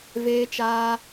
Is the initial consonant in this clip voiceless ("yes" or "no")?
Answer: no